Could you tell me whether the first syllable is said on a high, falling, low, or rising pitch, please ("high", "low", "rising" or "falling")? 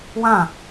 falling